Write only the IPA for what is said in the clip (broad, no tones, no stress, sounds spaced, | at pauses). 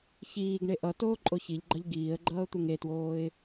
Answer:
ç iː ɡ ɳ e ʔ ʌ t oː ǃʼ o ç i ʎ ɡ͡ǃ ʌ ʎ ɡ iː ə̯ ɡ͡ǃ ʌː ʊ̯ t̪ u ŋ e t w oː ɪ̯